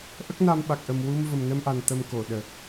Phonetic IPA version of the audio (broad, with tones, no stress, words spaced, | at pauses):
ʔə˦˥k̚na˧mɓa˨˩k̚ʔə˨˩m wu˧mvə˨˩mnə˧mʔa˨˩n t̪ə˧mko˨˩˨ɗə˨˩k̚